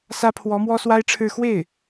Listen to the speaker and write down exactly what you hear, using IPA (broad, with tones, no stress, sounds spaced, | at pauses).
s ä˥ pʰ w ɔ˧˥ m w ɔ˥ s w a˥ ɪ̯ ʈ͡ʂʰ ɻ̩˥˧ x w e˥˩ ɪ̯